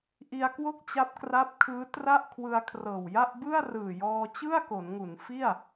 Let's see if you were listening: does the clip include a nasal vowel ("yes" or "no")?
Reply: no